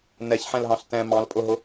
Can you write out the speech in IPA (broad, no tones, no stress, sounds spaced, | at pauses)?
n ɛ ç ħ ɛ̃ l ɦ ɑ̃ ɬ t ɛ̃ m ɑ̃ l pʼ ʊ ɦ ʊ